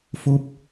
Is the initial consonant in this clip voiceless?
yes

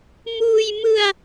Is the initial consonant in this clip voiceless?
no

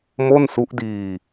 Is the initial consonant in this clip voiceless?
no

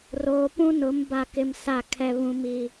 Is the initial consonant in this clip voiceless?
no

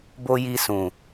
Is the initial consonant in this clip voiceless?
no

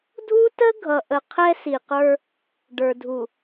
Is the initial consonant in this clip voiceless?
no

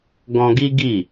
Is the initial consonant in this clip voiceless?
no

